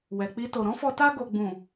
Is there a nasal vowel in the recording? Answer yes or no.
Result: yes